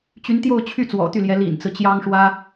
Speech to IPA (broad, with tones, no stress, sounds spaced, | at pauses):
t͡ɕ y˧˥ n t̪ j o˥˧ ʊ̯ t͡ɕʰ y˥˩ t͡s w ɔ̰˨˩ t̪ y˥˩ l j ɛ˧˥ l ḭ˨˩ n t͡s ɹ̩˦ t͡ɕ j ɑ˥ ŋ ʂ w ä˥